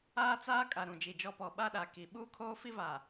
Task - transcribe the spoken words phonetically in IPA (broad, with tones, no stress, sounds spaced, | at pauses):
aː˦ t͡s aː˦ kʼ a˨ ɾ ũ˨ d͡ʒ i˨ d͡ʒ ɔ˦ p ɔ˨ ɓ a˦ ɗ a˨ k i˨ ɓ uː˦ kʰ oː˦ f i˦ v a˨